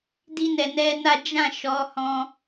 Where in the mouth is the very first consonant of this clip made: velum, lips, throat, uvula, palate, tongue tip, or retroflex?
tongue tip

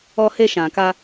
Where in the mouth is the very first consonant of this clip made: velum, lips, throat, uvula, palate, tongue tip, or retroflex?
throat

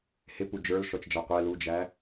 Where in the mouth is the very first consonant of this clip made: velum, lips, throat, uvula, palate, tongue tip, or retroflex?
throat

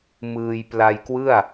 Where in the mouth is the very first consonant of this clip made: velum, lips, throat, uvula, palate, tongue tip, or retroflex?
lips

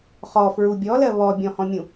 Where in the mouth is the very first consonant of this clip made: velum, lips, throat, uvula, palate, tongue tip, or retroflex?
uvula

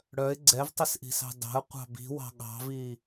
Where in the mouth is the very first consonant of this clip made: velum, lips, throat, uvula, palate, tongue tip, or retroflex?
retroflex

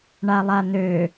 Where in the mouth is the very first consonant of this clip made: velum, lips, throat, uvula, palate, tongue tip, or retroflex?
retroflex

